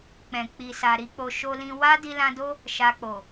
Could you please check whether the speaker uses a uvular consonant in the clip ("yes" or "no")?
no